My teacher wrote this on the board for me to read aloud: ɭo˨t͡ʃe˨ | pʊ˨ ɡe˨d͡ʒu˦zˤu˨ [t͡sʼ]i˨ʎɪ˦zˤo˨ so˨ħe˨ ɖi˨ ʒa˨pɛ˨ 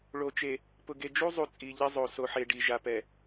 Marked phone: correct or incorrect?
correct